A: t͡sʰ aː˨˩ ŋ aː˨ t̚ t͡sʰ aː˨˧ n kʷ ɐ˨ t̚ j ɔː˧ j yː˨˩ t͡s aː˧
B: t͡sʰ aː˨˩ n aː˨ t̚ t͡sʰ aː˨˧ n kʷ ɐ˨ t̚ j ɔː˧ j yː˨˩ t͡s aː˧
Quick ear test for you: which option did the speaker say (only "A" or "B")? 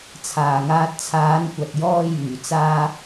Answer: A